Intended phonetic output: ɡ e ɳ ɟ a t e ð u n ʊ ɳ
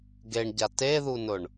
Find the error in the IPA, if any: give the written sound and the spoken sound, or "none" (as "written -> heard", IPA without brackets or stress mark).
none